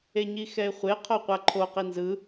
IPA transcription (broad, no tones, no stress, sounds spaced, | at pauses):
e ɲ i x ɛ ɪ̯ χʷ e qʰ o qʷ a ǃʰ o q i n z ɯ